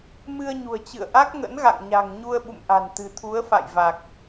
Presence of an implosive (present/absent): present